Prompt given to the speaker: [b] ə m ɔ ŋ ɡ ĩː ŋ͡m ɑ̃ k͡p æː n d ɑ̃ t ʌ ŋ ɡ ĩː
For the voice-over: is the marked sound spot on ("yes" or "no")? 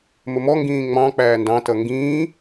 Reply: no